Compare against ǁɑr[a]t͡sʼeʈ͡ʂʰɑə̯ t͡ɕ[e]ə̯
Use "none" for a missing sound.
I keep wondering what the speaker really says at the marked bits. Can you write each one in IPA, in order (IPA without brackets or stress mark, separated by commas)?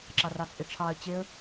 ɑ, e